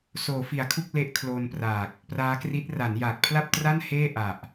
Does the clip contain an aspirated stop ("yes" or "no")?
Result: yes